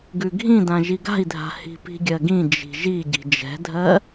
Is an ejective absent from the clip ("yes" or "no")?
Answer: yes